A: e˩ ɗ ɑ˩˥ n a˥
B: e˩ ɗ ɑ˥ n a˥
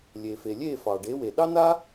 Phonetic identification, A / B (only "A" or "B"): B